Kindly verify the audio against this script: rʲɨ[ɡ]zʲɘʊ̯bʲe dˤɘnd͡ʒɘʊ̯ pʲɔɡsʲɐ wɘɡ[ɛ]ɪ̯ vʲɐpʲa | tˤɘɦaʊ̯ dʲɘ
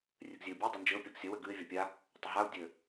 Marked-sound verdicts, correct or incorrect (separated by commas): correct, incorrect